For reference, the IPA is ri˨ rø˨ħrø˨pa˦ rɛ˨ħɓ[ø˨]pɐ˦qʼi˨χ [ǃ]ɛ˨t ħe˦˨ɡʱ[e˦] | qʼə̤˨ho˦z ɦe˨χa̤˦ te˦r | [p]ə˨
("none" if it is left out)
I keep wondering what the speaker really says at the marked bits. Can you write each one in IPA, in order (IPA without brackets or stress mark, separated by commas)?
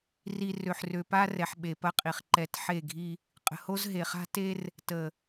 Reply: e˨, ǃ, i˦, t